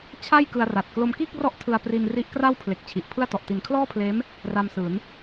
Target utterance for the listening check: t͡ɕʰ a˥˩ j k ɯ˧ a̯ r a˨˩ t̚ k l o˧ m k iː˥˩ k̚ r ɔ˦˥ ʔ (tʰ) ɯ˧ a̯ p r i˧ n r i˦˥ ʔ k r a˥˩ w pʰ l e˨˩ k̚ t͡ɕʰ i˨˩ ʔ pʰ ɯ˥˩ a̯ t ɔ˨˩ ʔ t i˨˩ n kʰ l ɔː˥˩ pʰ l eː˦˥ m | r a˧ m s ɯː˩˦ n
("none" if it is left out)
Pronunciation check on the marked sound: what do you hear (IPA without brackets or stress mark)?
tʰ